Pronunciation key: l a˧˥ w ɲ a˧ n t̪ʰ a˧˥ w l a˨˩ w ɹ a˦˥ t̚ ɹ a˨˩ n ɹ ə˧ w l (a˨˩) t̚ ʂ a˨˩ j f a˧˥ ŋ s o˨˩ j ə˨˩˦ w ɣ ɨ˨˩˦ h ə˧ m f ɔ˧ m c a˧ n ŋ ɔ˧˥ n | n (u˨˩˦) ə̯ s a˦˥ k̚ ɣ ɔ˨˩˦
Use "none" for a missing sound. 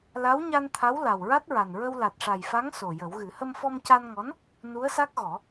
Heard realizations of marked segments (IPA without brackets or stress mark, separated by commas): a˨˩, u˧˥